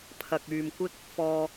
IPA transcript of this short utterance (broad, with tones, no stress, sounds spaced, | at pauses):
pʰ ɐ˨ k̚ yː˨ m kʷ ɪ˥ k̚ | f ɔː˨